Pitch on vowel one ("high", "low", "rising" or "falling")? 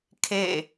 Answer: falling